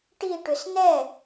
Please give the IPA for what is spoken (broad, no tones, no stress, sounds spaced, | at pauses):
ʈ i ʈ ʏ s n ɛ